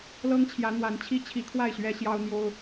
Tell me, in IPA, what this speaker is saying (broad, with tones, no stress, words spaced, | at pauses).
lɤ˦ŋt͡ɕʰjä˨˦ n̪wa˨˦nt͡ɕʰi˦t͡ɕʰi˨˦kʰwa˥˨ɪ̯ ɕɥɛ˦ɕjɑ˦ʊ̯n̪jo˦ʊ̯